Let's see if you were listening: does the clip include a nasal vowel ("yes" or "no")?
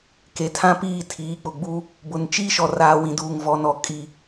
yes